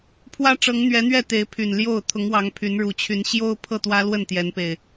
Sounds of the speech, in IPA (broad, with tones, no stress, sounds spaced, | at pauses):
pʰ w ä˦ ʈ͡ʂ ɤ˨˦ ŋ n̪ ɥ ɛ˨˦ n̪ ɥ ɛ˥˨ t̪ e˨˦ ɪ̯ pʰ y˨˩ n l j o˥˨ ʊ̯ t̪ʰ ʊ˨˦ ŋ w ɑ˨˦ ŋ pʰ y˨˦ n ɻ u˨˩ t͡ɕʰ y˨˦ n ɕ j o˦ ʊ̯ pʰ ɤ˥˨ t̪ w ä˦ l w ə˥˨ n t̪ j ɛ˨˦ n p e˨˩ ɪ̯